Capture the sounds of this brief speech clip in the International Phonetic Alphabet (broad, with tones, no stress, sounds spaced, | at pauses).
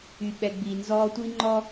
y˧ ɓ ɛ˧ ɡ͡b iː˧ n z ɔː˥ tʷ i˥ ŋ͡ǃ ɔː˥